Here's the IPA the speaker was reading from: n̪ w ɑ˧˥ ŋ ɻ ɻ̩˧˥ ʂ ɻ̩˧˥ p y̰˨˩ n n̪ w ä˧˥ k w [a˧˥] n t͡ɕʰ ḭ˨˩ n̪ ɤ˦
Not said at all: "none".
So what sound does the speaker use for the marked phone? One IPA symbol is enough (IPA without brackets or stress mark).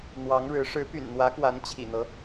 a˧˥